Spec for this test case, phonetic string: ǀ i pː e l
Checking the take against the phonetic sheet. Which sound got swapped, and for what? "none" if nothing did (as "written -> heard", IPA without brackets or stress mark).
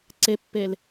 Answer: i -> e